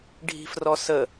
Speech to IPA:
ɖʱi̤frɔsə

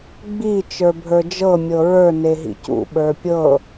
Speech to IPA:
ɡ͡bi t͡ʃə˞bʱə˞d͡ʒɤ mʲɤɹə˞ neɦḭcṵ ɓə˞pʲɤ

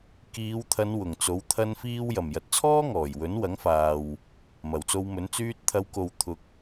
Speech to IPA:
kiː˨˧wt̪ʰɐ˨˧n wʊ˨˩ŋt͡so˨˥w t̪ʰɐ˥nfiː˥w jɐ˨˩mjɐ˨t̚t͡sʰɔː˥ ŋɔː˨˩jwɵ˨˥nwɐ˨˥ŋfaː˨w | mɐ˨˩wt͡so˧wmɵ˨˥n t͡syː˧t̚t̪ʰɐ˨˧wko˨w t̪ʰʊ˨k̚

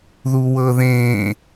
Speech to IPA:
ðuwɤðẽ

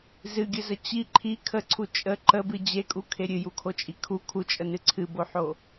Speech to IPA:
zɨɡʲəzə t͡ɕi ǃʰi kʰəǀʰu t͡ʃʼə ǃəbɨ d͡ʑekʼukʰe ɾʲɨjukʰot͡ʃʼi kʰu kʰut͡ʃʼənɨ ǀʰɨboħo

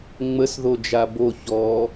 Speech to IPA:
ŋ͡məs ðod͡ʒabo çɔ

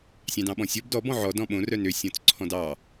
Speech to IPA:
sʲɑ̃dɑ̃ɓɔ̃sʲɔb dɔ bɔ̃ʕɔ dɔ̃ɓõ rœnø sʲɔ̃t͡sǀʰɔ̃dɑ

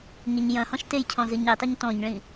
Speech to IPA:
ɲɘɲjɐ̃hɔ̃ʃ tejcʰɔ̃ zɨɲitˤɐɲ tɔ̃ɲɭĩ

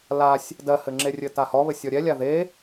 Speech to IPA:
lasʲ | dɜhɘŋ͡ǁerʲɘ tahɔβɘ sʲɔɾʲɛlʲa ðe

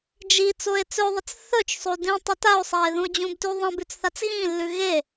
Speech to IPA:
d͡ʒi t͡soe̯t͡sɵðˤɐt͡s θɵt͡ʃsˤo dĩtˤɵ tao̯sˤae̯ ðũo̯d͡ʑũbtʉ ðˤɐ̃b ʉt͡sθat͡sɣĩlːʉ ɣe

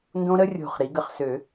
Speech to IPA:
ndõ˦˥ɾə˦˥rʲo̤˧˩χ ɾi˩˥ɡə˧˩χ sø˨˩˦

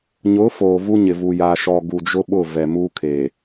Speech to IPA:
ɲʊ˨˦ foː˨vu˦ɲɪ˨vu˨ ja˨ʃɔ˨ ɡu˨d͡ʒʊ˦ ɓʊ˦˨vɛ˨muː˦kʰe˨

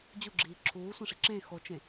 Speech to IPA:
d͡ʑuɡ͡ǁiː ǁʰuːsʷẽʂi ǁẽ xot͡ʃẽ

